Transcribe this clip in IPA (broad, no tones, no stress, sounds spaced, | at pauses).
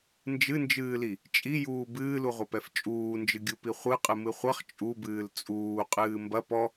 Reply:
n d͡ʒ ɨ n d͡ʒ ɨː l i | t͡ʃʼ i j uː b ɨː l u ʁʷ ɐ p ɛ f t͡ʃʼ uː n d͡ʒ ɨ ɡʲ u p i χʷ ɨ qʼ ɨ m ɨ χʷ ɐ χ t͡ʃʼ u b ɨː l t͡sʼ uː qʼ ɨː m b ɐ p ɔ